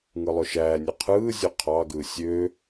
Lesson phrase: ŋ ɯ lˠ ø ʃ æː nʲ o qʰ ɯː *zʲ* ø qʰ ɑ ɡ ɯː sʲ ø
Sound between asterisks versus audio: correct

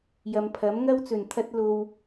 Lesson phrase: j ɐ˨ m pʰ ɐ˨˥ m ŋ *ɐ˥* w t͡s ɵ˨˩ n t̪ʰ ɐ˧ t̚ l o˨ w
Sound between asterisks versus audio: correct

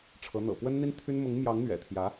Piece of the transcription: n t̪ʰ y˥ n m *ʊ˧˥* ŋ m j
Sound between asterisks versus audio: correct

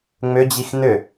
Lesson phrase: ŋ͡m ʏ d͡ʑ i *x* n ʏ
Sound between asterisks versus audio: correct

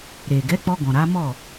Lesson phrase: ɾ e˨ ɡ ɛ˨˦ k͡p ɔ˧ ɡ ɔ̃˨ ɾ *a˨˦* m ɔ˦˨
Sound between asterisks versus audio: correct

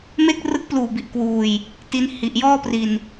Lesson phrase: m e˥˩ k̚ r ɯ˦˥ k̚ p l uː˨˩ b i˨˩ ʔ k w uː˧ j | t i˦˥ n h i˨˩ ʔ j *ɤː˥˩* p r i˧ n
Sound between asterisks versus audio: incorrect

